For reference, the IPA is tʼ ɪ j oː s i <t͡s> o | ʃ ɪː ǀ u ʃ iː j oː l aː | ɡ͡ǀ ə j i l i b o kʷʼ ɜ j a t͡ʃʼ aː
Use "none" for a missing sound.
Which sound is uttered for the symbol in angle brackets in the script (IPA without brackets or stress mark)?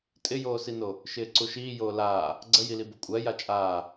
n